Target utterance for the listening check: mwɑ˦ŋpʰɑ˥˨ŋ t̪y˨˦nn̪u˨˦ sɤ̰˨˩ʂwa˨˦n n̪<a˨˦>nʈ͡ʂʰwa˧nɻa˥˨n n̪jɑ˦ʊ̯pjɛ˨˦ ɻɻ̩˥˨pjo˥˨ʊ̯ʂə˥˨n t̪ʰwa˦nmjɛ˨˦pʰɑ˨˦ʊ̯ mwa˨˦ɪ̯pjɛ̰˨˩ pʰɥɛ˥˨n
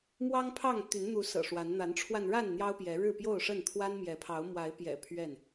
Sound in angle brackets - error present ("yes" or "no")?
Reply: no